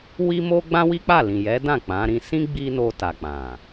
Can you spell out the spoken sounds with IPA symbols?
w i˦ m o˦ ɡ͡b ã˦ w i˦ k͡p a˦˨ l ĩ˨ j ɛ˨˦ d ã˦˨ k͡p ã˨˦ ɾ ĩ˧ s ĩ˦ ɡ͡b i˦ n o˧ t a˨ k͡p ã˨

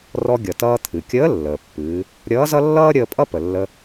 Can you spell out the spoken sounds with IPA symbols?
r ɔ˧ ɡʲ ʌ˩ t ʌː˧ t̪ʰ ɨ˩ kʲ əː˧˥ lː əː˩ pː ɨː˩˧ | ɾʲ ʌː˧˥ z ʌ˥ lː ʌː˥ ɾʲ əː˧ pʼ ʌ˥ p ə˩ lː ə˧

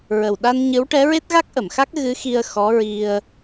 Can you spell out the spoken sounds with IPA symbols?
ɹ ə˨˩ w ɗ a˧ n ɲ ɨ˧˥ w ʈ ɛ˧˥ ɹ e˦˥ t̚ ɣ a˦˥ k̚ ʔ ə˨˩˨ m x a˦˥ k̚ ɣ ɨ˧˥ x i˧ ə̯ x ɔ˧˥ ɹ i˧ ə̯

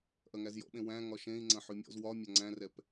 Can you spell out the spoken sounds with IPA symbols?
ʔ ɐ ŋ æ z j ɔ̰ ɓ ẽ w æ̃ ŋ ɒ ʃ ẽ i̯ ŋ͡ǀ ɐ̃ ħ ʉ mʲ ɔ̰ z w ɒ mʲ ɒ ŋ͡ǀ æ̃ r ɛ p

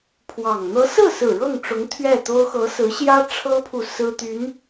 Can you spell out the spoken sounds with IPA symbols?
pʰ w ɑ˨˩ ŋ n̪ ɤ˧˥ s ɹ̩˥˩ s ɹ̩˨˩ ɻ ɤ˥˩ ŋ ʈ͡ʂ ʊ˧˥ ŋ t̪ʰ ɥ ɛ˥˩ t̪ o˥ ʊ̯ x ɤ˧˥ s ɹ̩˧˥ ɕ j ä˥ ʈ͡ʂʰ ɤ˥ pʰ u˨ s ɹ̩˥ t̪ y˧˥ n

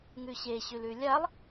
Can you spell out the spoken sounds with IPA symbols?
ŋ ʉ ɕ e ɕ ʉ l ʉ lʲ a lˠ

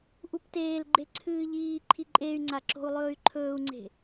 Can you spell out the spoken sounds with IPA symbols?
ʔ u p t eː l ɡ͡ǃ e ǀʰ ɨː ʎ iː ǃʰ i ǃʼ e y̯ ŋ͡ǀ a ǁ o̤ u̯ lˠ ɵː y̯ ǃʰ ɵː u̯ ŋ͡ǀ e̤

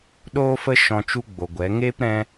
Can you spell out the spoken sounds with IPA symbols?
ɗ oː˦ f ə˦ ʃ ɔ̃˧ t͡ʃ u˦ ɡ͡b o˨ ɡʷ ɛ˨˦ ŋ eː˦ p ɾ ɛ̃˧

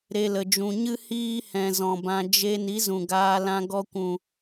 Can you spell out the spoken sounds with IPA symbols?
ɾ e˧ l ə˨ d͡ʒ ũ˨ ɲ ɨ˦ h iː˦ h ɛ̃˨ z ɔ̃˨ b ã˧ d͡ʒ e˧ n i˨˦ z ũ˨ ɡ aː˧ l ã˧ ɡ ɔ˧ kʷ ũ˨

